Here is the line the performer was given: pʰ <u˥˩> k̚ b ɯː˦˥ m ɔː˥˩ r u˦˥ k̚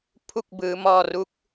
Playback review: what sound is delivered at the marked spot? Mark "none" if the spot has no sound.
u˥˩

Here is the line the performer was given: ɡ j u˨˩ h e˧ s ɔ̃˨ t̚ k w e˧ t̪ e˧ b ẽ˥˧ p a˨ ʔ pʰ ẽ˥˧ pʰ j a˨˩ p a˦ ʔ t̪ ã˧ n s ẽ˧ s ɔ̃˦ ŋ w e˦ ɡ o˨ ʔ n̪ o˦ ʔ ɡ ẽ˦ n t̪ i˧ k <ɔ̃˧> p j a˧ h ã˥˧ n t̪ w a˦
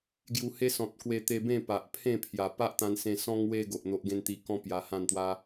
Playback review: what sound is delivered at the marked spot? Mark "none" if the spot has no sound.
ɔ̃˦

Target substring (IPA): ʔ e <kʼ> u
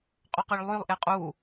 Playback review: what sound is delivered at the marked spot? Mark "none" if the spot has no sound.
qʼ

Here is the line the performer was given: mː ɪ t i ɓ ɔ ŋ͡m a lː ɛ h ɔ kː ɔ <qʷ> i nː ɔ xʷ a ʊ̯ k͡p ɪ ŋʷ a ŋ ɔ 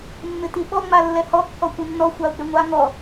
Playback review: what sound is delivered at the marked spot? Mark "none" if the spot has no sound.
kʷ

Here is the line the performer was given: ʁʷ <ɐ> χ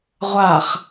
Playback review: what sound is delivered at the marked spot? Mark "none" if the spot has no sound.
a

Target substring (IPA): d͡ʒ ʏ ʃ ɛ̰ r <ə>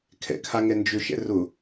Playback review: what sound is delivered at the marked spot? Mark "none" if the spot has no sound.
ʊ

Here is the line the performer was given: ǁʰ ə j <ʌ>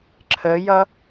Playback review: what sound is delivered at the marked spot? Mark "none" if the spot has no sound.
ʌ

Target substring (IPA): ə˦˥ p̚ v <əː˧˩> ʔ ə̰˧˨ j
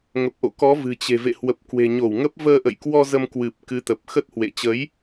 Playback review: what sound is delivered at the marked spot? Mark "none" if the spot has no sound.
əː˧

